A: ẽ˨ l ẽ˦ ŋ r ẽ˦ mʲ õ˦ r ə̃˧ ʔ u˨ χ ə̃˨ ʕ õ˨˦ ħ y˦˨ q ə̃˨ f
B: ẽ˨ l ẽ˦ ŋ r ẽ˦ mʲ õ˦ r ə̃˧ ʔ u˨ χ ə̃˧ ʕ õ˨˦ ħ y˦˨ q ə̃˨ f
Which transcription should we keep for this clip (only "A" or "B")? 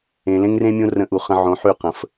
B